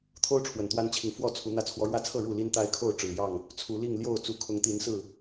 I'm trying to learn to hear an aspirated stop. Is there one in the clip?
yes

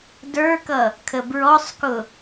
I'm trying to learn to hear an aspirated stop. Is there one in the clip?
yes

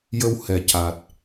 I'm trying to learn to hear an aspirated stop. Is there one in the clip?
no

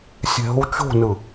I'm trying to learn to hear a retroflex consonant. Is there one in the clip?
no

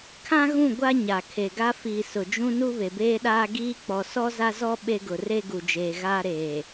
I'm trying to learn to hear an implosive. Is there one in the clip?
yes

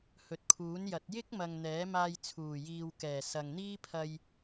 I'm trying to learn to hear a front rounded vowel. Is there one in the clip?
no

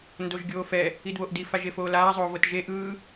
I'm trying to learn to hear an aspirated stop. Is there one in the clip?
no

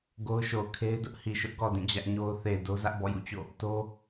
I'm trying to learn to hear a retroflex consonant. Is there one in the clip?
no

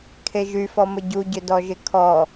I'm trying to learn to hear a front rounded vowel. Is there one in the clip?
yes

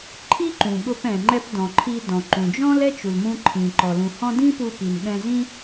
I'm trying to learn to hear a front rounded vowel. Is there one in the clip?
no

